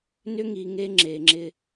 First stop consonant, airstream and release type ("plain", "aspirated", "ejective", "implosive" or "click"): click